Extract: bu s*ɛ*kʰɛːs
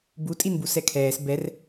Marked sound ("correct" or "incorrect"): correct